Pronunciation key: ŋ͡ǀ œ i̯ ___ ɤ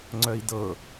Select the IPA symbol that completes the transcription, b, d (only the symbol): d